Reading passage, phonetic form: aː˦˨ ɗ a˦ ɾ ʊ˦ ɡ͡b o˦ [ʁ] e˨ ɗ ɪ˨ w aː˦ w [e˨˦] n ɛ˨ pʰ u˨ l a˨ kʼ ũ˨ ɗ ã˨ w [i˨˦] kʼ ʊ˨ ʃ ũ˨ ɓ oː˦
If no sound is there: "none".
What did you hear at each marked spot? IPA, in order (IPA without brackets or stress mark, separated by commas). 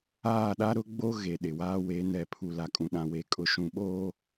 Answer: ɣ, e˨˦, e˨˦